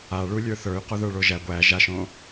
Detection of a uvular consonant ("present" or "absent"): present